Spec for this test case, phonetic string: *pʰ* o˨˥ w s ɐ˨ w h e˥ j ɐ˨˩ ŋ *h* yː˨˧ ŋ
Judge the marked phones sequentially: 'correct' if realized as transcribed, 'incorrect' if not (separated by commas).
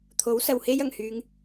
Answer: incorrect, correct